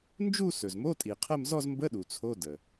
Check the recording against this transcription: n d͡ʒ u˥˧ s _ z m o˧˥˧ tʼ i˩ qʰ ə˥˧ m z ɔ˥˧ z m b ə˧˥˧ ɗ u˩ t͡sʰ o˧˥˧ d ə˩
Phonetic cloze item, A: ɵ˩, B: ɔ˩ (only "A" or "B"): A